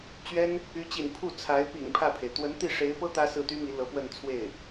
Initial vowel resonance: oral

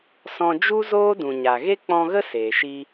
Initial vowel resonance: nasal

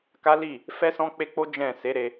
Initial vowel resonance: oral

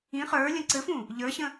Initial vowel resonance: nasal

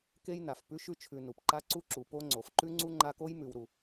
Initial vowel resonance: oral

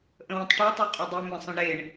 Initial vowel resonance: nasal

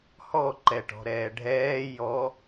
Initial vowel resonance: oral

